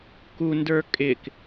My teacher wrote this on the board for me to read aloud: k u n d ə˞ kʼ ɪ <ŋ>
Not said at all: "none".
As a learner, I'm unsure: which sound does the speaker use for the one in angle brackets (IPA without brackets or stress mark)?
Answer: k